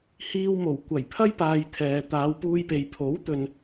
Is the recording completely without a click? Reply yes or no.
yes